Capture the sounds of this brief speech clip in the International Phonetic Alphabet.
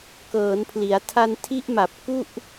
kɤː˩˦npʰli˩˦a̯ tʰa˧ntʰi˦˥ʔma˨˩p̚ ku˥˩ʔ

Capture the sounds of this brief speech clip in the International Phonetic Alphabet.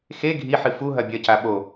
xe ɡʱiħɨ fu ɦɐbʲɐca ɓo

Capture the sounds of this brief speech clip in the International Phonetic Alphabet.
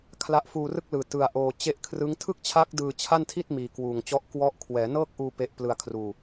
kʰla˦˥ʔfuː˧rɯ˥˩k̚lɯː˨˩ tɯ˧a̯ʔoː˧ t͡ɕe˦˥ʔkʰrɯ˦˥ŋ tʰɯ˥˩k̚t͡ɕʰa˦˥k̚ dɯː˧t͡ɕʰa˥˩ntʰi˥˩t̚ miː˨˩kwuː˨˩ŋt͡ɕɔ˦˥ʔ kwɔ˦˥ʔ kʰwɛː˩˦nɤː˥˩k̚ʔuː˧ pe˦˥ʔplɯ˧a̯kʰruː˧

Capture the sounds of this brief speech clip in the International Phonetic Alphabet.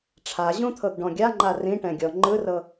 ʈ͡ʂʰaʑũt̪ʰɤɡɖɔ̃ ɡʲaŋ͡ǃa rĩʈɛ̃ɡʲɔ ŋ͡ǃɯrɤ

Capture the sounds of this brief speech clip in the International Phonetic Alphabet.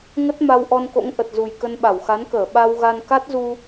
ŋə˦˥t̚ma˧w ʔɔ˧nko̰˧˥ŋ ʔə˨˩t̚zu˨˩j kə˧nɓa˧˩wxa˨˦nkəː˧˩ ɓa˧wɣa˧n ka˦˥t̚zu˧

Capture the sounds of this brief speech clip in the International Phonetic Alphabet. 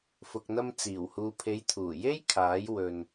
fʊ˨k̚n̪ɐ˧m t͡siː˨˩whuː˨pʰe˨˧jt̪ʰuː˨˩ je˥jkʰaː˨˥j wɵ˧n

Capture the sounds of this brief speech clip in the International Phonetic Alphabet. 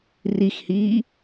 rixhiː

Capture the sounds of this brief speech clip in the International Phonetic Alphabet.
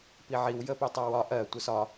piʕiw jəpitˤɜwɒ ʔɜ tʷəsɒ

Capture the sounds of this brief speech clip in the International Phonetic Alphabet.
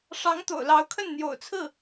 ʂɑ˧˥ŋt̪o̰˨˩ʊ̯lɑ˧˥ʊ̯kʰə˥˩n n̪jo̰˨˩ʊ̯t͡sʰɹ̩˥˩

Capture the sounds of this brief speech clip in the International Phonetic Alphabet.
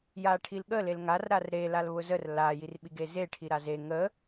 jaʈʰilɠə lelŋar ɾarɾe lalβʊzər la jirɓiɡeze ʈʰiɾaze ŋə

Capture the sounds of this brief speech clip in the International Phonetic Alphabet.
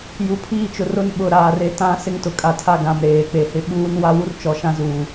ju˨pʰiː˦t͡ʃʊ˨r ʊ˦n ɓʊ˨ ɾaː˨re˦tã˦ sɪ˦ŋtʊ˨kʼa˨tʰa˦˨ ɡã˨mɾeː˨k͡pe˨hɪ˦ ɓuː˦n wa˦wu˦r t͡ʃɔ˨ʃã˦ zuː˨

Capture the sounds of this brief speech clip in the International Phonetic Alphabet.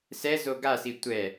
sɛzo ɡasi tʷɛ

